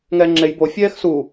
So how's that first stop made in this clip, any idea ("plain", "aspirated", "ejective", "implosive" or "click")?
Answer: click